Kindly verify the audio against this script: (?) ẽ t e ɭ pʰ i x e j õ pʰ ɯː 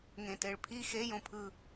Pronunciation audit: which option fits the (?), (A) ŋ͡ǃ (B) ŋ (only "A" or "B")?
B